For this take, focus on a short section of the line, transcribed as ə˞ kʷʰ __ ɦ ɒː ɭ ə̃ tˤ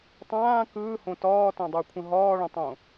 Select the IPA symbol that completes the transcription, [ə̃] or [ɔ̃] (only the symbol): ə̃